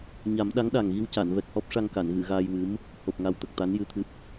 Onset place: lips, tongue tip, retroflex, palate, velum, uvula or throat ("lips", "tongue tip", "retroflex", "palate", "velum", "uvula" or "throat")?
palate